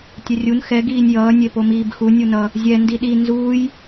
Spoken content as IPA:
tʲ ɛ rʲ u n x ɛ ɡ iː nʲ j ʌː nʲ e p o m iː b x u nʲ u n ʌ | zʲ ɛ n d i ɗ i n z uː j

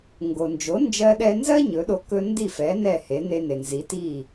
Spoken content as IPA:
ŋ ɡ o˩ n d͡ʒ o˩˥ n d͡ʒ ɜ˧ ɗ ɛ˧ n z ɜ˥ ɲ ɵ˩˥ ɗ o˧ k ɵ˧ n d i˥˩ f ɛ˩˥ n ɛ˥˩ h e˩˥ n e˧ n e˩ n z i˩˥ t i˥˩

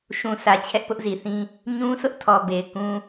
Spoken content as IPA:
ʃ ũ˨ sʰ ä˨ t͡ɕʰ ɛ˦ ʔ p ʊ˦ ʔ z i˨ θ ĩ˦ | ɲ ũ˦ s ʊ˦ ʔ tʰ ɔ˨ b e˨ ɪ̯ k ũ˦

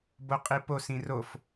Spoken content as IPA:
b o qʼ i p o s ĩ r o f

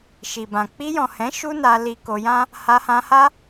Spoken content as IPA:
ʃ i˨ b ã˨ k͡p i˧ j ɔ̃˨ h ɛ̃˨˦ ʃ u˦ n a˧ l i˧ k o˧ j ã˦ | h a˧ h ã˧ h a˦

